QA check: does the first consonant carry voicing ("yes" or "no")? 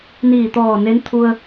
yes